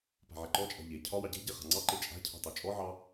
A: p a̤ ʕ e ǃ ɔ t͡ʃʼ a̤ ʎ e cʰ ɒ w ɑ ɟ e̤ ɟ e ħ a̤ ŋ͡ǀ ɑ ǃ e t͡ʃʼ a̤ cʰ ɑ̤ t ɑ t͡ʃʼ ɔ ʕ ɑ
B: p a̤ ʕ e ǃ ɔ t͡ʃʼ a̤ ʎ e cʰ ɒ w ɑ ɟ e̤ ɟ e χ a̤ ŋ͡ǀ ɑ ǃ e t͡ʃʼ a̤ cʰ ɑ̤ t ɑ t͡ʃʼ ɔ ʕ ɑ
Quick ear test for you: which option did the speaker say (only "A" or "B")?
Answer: B